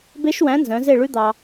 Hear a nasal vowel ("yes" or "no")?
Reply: yes